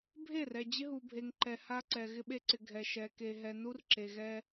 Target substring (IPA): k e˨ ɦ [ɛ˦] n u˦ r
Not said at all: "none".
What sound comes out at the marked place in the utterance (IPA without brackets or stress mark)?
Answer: ɛ˨